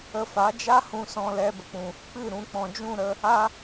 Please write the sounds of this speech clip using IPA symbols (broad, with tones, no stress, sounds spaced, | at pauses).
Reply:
ə˧ f a˨˦ d͡ʒ a˦ h ũ˧ s ɔ̃˧ l ɛ˧ b ə˨ k͡p ũ˨ | k͡p ɨ˦˨ ɾ ũ˨˦ k͡p ɔ̃˨ d͡ʒ ũ˦˨ ɾ ə˧ | a˦